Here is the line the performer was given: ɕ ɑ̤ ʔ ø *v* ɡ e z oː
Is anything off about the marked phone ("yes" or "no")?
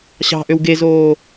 yes